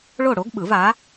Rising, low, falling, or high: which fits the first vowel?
falling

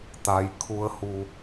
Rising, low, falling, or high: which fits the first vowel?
low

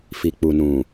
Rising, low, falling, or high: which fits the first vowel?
low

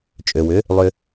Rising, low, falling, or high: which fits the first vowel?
low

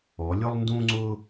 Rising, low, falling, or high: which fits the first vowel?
rising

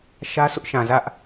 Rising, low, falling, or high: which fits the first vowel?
high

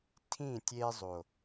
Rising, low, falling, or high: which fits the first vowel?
falling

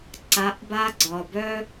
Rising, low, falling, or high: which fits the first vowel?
rising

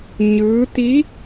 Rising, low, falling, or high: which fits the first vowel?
rising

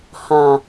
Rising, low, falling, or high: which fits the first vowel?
low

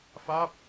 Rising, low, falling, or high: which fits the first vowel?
falling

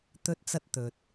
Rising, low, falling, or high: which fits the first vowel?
high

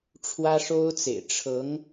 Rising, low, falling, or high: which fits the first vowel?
high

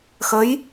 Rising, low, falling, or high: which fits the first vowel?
rising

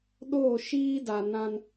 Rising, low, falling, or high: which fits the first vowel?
falling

